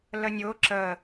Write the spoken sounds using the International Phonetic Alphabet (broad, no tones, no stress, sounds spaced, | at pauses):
l ə nʲ ʊ ǁ ə